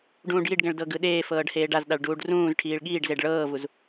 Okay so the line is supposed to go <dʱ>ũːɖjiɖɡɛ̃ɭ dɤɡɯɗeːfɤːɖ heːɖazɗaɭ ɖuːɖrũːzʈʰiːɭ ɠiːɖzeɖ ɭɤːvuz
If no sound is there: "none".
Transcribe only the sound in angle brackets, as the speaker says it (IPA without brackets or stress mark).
ɖ